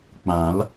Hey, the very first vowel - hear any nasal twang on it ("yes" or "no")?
yes